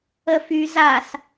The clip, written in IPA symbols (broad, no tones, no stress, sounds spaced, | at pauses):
ə f y z a s